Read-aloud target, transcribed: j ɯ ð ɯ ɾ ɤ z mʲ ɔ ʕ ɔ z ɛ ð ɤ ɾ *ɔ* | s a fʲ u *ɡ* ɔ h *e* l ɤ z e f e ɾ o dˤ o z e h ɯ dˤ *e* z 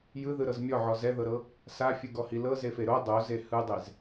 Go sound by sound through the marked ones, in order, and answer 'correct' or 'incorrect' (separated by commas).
incorrect, correct, incorrect, correct